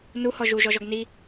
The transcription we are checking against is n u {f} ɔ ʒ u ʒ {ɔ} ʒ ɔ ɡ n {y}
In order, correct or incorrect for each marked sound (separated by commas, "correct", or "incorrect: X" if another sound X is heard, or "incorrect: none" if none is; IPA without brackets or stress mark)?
incorrect: h, correct, incorrect: i